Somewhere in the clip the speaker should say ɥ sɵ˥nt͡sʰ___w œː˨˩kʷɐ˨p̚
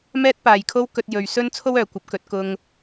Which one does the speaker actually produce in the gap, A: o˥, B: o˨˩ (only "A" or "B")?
A